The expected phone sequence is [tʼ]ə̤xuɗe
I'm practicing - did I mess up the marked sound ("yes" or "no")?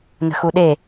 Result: yes